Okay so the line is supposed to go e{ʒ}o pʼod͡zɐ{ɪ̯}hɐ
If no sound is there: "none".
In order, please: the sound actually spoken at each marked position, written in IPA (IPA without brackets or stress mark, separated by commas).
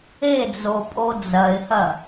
d͡z, ɪ̯